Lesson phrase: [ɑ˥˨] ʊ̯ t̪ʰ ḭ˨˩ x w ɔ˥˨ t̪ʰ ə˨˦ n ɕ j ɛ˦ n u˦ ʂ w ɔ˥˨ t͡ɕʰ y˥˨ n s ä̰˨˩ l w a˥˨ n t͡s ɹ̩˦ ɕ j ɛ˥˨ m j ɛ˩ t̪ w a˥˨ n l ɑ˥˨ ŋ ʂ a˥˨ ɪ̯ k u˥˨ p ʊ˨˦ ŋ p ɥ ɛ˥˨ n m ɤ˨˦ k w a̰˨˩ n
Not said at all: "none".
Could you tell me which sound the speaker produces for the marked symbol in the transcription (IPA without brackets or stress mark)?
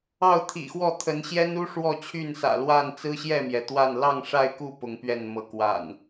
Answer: ɑ˥˨